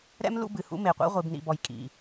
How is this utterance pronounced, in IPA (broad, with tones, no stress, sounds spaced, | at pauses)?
ɾ ɛ̰˦ m l ṵ˦ b ɨ˨ h ṵ˦ m e˨ qʷ ḭ˦ ʁʷ i˨ b n ḭ˨ b ɔ˨ j kʼ ḭ˨